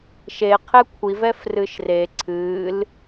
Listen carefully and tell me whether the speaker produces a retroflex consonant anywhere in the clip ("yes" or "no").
no